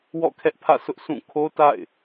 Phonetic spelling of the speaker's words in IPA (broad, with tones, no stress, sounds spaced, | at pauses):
w ɔ̰˦˨ kʰ ɛ˦ ʔ pʰ ä̰˦˨ s ʊ˦ ʔ sʰ ũ˦˨ kʰ o˦ t a̰˦˨ ɪ̯